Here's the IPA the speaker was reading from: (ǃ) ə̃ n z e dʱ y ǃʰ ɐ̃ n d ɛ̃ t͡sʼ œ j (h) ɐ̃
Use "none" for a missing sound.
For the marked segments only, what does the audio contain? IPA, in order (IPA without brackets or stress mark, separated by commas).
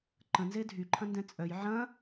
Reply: ǃ, ʕ